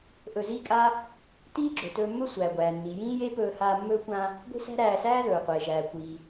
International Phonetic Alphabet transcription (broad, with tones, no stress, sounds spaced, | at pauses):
ʔ ɵ˧ z iː˥ kʼ a˥ | t iː˥ ɡ͡ǁ ɵ˩ t ɵː˧ mː ɵ˥ sʷ æː˩ ɡʷ æː˩ nː iː˩ j ĩː˥ j e˥ p ɵː˧ h aː˧ mː ɵː˥ kʷ ã˧ | ɡʷ i̤˥ s æ̤˥ ɾ æː˧ s æː˥ ð ɵː˩ qʷ eː˩ ʒ æː˩ kʷ iː˩